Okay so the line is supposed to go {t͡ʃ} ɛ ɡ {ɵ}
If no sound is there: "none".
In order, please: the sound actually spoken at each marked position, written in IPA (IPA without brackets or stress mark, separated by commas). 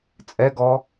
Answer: t͡sʼ, ɔ